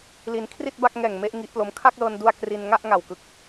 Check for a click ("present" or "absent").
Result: absent